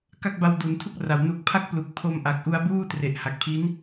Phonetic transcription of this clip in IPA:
ka˥˩k̚ba˧w du˩˦ntʰu˥˩k̚ra˨˩w nu˨˩k̚pʰa˦˥k̚ plu˨˩k̚pʰo˧mʔa˨˩k̚ʔu˧a̯ buː˥˩tre˨˩ʔha˨˩k̚pʰi˦˥n

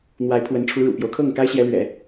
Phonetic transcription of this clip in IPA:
n̪wa˧˥ɪ̯pʰwə˧˥nʈ͡ʂʰu˧˥ ɻṵ˨˩pjo˦ʊ̯kʰɤ˥˩ŋ ka˥ɪ̯ɕjɛ˧˥lɥɛ̰˨˩˦

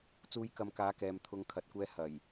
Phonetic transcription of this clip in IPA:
t͡suː˧jkɐ˨˧mkaː˨˥ kɛː˨mt̪ʰʊ˨˧ŋ kʰɐ˨t̚kʷɛː˧ hɐ˨˩j

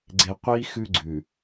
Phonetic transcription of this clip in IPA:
ɡ͡ǀe˨qʷi˦ xʉ˦ɡ͡ǀʉ˨

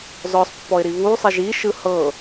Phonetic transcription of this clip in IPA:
zɔsˤpːɔɪ̯ɾi βusˤeʒ iʃɯ hɤ

